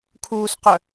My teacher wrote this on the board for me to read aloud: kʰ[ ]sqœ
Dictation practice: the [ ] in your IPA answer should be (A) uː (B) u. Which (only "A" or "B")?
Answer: A